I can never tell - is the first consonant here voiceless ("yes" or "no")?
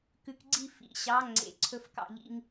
yes